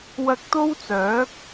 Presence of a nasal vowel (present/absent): absent